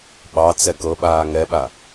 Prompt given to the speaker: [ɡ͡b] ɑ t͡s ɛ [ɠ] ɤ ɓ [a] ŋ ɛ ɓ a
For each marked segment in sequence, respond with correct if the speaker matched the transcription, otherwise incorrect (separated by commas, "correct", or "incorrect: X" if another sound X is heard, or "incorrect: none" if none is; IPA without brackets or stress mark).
incorrect: ɓ, incorrect: k, incorrect: aː